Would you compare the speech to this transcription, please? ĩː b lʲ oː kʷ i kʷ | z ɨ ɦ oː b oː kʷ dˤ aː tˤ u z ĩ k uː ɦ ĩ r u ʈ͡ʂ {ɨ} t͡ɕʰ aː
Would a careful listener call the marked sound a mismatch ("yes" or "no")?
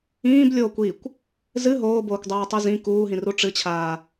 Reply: no